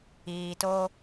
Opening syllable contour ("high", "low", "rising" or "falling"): low